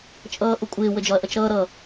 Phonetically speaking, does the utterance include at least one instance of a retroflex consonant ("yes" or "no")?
no